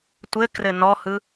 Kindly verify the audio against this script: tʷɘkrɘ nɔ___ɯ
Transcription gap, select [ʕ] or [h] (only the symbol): h